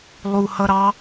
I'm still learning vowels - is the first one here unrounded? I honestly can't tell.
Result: no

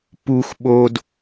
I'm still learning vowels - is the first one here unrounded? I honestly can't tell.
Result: no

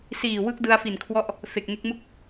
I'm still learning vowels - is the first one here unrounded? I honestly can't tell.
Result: yes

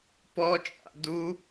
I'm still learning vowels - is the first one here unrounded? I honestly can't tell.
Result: no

